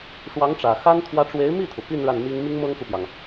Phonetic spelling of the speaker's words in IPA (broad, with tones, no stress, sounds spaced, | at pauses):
ʂ w ɑ˧˥ ŋ ʈ͡ʂ ä˨˩ x a˥ n t̪ʰ w ä˧˥ ʈ͡ʂ w e˧˥ ɪ̯ m i˥˩ t̪ʰ u˩ p i˥˧ n ɻ a˥˩ n m i˥ ŋ m i˥ ŋ m ɤ˥ ŋ k u˨ p j ɑ˩ ŋ